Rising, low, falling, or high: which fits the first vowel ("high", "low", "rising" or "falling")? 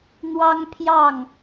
high